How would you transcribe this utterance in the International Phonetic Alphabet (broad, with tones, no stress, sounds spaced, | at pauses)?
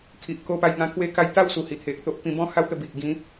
kʰ i˨ ʔ k o˧ p a˧ j ŋ ã˧ k w e˧ k a˧ j t̪ a˥˧ w s u˨˩ h i˨˩ t̪ʰ e˨ k̚ t̪ o˦ ʔ p ĩ˧ b ɔ̃˦ h a˦ w t̪ ə˧ b i˨ ʔ ɡ ĩ˨˦